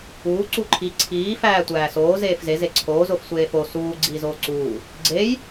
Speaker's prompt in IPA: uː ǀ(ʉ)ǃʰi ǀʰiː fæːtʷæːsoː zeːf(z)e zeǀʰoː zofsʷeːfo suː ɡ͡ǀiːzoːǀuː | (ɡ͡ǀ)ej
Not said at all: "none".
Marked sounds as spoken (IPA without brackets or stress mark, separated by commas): u, z, ɡ͡ǀ